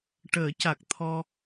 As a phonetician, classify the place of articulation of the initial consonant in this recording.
retroflex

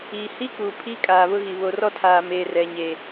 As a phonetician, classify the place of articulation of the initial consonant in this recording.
glottal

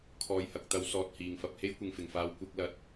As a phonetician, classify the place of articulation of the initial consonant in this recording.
velar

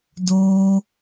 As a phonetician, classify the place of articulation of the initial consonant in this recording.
alveolar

